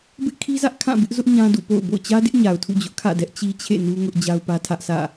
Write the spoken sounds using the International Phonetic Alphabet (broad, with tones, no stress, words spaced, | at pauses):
bɪ˦ʔkʰi˦zä˦ʔ kʰã˦˨bɪ˦ʔzʊ˦ʔ ɲã˦dṵ˦˨po̰˦˨ʊ̯ bo̰˦˨ʊ̯t͡ɕä˦dɪ˦ʔɲa˨ʊ̯ tʰṵ˦˨d͡ʑʊ˦ʔkʰä̰˦˨dɛ˦ʔ t͡ɕi˦t͡ɕʰḛ˦˨ nu˦ŋʊ˦ʔ d͡ʑa˦ʊ̯pä˦tʰä˦ʔ sʰä̰˦˨